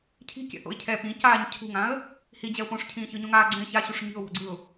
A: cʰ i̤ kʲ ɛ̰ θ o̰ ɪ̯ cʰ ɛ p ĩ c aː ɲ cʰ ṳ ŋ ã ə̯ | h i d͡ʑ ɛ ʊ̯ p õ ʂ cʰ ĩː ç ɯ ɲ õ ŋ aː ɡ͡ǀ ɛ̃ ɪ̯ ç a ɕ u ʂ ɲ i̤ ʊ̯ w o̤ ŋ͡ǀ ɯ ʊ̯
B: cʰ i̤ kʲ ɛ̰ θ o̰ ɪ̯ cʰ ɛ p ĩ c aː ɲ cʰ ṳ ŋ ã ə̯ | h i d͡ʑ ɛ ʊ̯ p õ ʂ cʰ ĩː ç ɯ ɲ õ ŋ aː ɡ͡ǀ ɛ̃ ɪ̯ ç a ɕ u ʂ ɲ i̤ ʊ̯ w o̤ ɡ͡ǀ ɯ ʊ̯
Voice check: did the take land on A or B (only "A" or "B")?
B